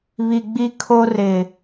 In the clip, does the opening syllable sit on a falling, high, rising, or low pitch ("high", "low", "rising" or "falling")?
low